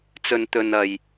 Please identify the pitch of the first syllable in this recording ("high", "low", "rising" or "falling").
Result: low